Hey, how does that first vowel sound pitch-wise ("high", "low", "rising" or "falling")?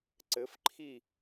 rising